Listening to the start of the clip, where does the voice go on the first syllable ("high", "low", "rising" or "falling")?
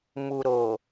low